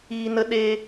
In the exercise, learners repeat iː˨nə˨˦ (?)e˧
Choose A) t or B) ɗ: B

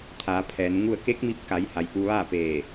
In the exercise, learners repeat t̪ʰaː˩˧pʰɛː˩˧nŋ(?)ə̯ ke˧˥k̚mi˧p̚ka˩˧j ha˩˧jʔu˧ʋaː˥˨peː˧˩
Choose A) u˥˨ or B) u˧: A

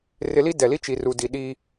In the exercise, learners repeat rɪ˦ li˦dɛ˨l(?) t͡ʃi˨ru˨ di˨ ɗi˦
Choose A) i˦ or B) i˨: A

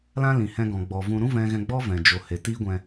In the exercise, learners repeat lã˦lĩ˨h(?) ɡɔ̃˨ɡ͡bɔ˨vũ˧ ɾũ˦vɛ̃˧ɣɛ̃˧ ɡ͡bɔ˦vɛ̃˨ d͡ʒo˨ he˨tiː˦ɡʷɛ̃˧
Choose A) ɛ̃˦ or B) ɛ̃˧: B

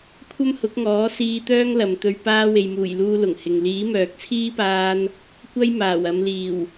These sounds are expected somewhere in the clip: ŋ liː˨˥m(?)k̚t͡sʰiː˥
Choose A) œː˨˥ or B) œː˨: B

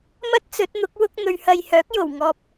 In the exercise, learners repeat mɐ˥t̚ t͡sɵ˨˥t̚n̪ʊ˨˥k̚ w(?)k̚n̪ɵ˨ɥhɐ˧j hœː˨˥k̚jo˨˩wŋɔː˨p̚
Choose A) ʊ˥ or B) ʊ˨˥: A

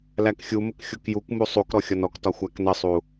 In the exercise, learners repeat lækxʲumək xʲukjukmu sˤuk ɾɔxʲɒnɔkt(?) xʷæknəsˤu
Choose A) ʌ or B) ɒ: B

